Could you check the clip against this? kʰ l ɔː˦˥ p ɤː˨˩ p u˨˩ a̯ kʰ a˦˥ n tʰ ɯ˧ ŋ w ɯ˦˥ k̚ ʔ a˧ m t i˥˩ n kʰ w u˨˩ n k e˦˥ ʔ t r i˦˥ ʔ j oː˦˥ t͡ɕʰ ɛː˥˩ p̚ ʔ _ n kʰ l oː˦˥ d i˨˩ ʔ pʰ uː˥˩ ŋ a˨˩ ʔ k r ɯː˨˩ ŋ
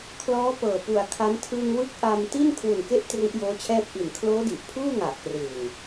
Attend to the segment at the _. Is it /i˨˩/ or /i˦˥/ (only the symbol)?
i˨˩